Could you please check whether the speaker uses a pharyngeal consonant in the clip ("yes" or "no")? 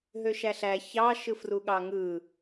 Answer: no